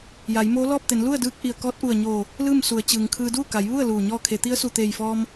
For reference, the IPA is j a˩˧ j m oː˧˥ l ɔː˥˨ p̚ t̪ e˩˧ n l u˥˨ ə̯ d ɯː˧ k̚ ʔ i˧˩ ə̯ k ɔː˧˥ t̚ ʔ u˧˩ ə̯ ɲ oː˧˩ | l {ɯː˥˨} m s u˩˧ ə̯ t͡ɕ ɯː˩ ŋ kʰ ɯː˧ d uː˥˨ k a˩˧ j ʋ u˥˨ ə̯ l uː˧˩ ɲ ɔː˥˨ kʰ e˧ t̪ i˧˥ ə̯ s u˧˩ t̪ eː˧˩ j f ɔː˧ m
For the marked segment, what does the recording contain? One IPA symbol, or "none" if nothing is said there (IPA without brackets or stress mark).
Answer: ɯː˥˨